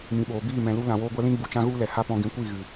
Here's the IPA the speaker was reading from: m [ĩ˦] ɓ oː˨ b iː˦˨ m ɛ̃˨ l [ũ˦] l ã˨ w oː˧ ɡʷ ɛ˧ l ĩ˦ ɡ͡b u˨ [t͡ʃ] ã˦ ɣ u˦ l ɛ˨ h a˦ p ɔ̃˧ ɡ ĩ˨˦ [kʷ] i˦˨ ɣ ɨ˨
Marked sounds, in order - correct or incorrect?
incorrect: ĩ˨, incorrect: u˦, correct, correct

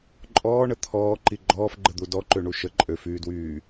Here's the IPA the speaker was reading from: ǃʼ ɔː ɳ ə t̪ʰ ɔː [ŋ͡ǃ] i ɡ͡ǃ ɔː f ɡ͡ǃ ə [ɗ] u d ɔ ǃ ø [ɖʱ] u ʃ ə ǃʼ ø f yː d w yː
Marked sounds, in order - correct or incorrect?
incorrect: ǃ, incorrect: d̪, incorrect: ɳ

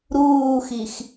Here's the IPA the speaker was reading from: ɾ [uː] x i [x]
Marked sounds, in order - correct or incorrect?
correct, correct

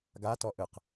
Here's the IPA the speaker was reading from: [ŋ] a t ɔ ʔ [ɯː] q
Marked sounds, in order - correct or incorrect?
incorrect: ɡ, incorrect: ɯ

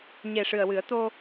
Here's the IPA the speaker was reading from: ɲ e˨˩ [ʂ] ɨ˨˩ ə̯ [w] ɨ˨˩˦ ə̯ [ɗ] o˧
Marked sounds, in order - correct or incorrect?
correct, correct, incorrect: t̪

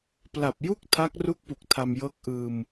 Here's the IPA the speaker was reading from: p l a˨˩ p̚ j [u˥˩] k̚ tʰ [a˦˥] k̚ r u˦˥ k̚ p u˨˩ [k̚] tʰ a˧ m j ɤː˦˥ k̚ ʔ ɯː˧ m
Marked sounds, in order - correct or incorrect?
correct, correct, correct

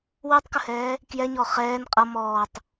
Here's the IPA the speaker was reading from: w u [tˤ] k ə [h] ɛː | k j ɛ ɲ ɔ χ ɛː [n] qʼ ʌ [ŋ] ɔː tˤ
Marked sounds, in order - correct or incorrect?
correct, correct, correct, incorrect: m

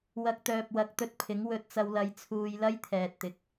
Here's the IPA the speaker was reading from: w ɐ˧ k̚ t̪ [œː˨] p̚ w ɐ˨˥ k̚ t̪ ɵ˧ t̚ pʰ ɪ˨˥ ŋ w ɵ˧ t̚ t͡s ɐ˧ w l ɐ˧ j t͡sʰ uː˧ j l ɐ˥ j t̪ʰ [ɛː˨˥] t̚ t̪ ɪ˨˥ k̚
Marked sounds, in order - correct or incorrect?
correct, incorrect: ɛː˨

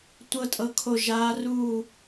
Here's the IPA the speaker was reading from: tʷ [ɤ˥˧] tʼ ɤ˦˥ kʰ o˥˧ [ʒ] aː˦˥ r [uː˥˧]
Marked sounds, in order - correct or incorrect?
correct, correct, correct

